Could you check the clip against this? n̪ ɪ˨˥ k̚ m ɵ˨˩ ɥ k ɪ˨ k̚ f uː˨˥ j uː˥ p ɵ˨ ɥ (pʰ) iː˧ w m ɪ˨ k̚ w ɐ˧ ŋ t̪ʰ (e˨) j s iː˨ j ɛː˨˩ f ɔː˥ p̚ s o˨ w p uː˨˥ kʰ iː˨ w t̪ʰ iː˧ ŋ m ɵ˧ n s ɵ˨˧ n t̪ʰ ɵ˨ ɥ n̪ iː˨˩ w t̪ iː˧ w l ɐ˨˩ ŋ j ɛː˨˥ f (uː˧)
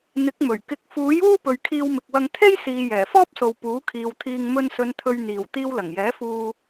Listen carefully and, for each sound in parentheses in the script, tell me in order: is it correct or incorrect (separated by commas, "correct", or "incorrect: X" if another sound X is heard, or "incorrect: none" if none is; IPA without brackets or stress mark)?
incorrect: kʰ, incorrect: e˥, correct